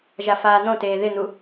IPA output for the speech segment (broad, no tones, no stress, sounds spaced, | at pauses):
ʒ a f aː n̪ õ t eː ð ɪ n̪ u